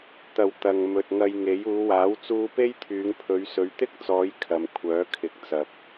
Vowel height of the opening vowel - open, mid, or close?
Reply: open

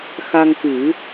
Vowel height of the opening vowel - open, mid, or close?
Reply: open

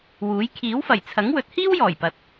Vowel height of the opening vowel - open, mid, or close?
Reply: close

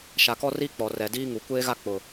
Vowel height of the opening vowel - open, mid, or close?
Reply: open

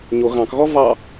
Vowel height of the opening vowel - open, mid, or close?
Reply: mid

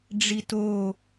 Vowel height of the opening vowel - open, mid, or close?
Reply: close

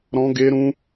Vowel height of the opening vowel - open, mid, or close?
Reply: mid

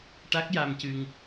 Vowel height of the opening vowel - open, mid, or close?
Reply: open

